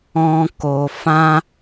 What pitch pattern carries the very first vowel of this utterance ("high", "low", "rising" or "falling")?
high